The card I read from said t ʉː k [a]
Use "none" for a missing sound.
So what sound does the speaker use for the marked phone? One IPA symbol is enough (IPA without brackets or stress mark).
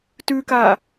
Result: aː